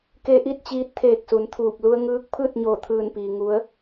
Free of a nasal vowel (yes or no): yes